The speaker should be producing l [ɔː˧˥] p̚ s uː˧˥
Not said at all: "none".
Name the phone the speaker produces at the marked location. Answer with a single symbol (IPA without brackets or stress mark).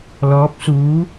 ɔː˧˥